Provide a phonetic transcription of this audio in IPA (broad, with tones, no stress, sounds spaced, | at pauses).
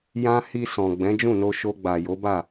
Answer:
j ã˦ h i˧ s ɔ̃˨ ɡ͡b ɛ̃˨˦ d͡ʒ ũ˦˨ n o˧ ʃ o˧ ɡ͡b a˨ j o˨˦ b a˦˨